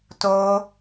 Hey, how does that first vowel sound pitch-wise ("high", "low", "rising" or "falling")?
high